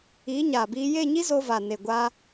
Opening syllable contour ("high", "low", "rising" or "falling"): rising